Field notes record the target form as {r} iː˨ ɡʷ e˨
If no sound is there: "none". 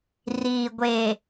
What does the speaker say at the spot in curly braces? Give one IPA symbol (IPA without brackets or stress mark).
r